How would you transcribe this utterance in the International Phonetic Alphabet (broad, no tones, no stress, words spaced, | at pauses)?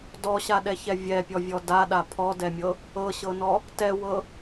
dɔɕaɗɛçɛ vʲɛpʲɔvʲɔ daɗa pʰɔdɛmʲɤ | ɤɕɤnɔ | tɛwɤ